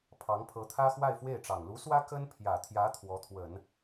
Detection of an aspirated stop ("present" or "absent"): present